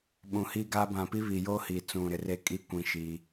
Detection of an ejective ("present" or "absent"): present